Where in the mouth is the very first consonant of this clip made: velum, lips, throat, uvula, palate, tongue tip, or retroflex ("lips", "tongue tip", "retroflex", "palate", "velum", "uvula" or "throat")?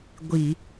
velum